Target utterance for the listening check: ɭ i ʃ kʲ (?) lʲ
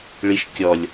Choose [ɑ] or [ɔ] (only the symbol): ɔ